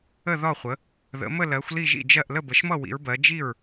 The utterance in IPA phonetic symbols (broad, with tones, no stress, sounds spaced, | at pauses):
ə˥˩ ð ɒ˥˩ χʷ ə˩˥ | ð ə̰˩˥ m ə˥˩ l ɜ˩˥ xʷ l i˥˩ ʒ ḭ˥˩ d͡ʒ ɜ˥˩ ʔ l ə˥˩ b ə˩˥ ʃ m ʌ˥˩ w ḭ˩˥ ɹ b ɜ˩˥ d͡ʒ i˥˩ ɹ